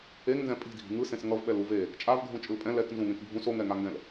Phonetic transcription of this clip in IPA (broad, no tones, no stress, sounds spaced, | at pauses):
e ŋ n z ɛ̃ pʼ i̤ dʱ i̤ ŋ ɯ s ẽ s ŋ ʌ v ɓ ɛ l u v e | t͡ʃʼ a v ɡʱ ũ t͡ʃʼ ɯ l pʼ ɛ̃ l ɛ k n z ũ ŋ ẽ k bʱ ũ s o ŋ ɛ ŋ a ŋ ɡ ɛ̃ l